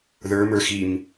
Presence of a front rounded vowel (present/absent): absent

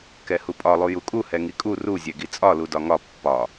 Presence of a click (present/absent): absent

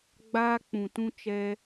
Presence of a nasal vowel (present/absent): present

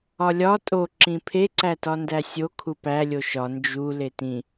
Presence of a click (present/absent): present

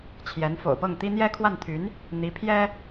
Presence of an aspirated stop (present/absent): present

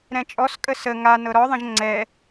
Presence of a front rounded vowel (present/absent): absent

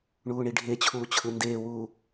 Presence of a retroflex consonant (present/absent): present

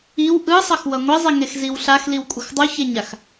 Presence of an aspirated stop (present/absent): absent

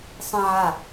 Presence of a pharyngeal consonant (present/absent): present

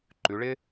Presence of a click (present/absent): present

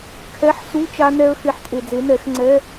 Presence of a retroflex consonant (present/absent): absent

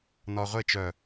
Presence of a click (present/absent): absent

